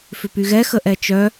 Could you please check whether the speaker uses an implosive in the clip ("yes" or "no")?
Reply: no